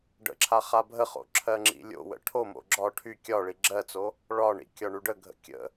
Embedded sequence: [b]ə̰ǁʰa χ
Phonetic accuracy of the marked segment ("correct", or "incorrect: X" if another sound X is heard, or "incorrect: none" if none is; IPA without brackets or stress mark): incorrect: ɖ